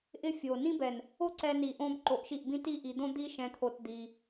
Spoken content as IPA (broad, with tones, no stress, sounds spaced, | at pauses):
ʔ ɪ˧ fʲ o˨ n ĩ˦ b ɛ˨ n | o˦ ǀ ɛ˧ n i˨ ʔ õ˧ b ǃ o˨ ʔ ʃ i˦˨ ʔ b ĩ˦ t i˦ ʔ i˧ d̪ õ˦ d̪ i˦ ʃ ɛ̃˧ t̪ʰ o˧ t d̪ i˧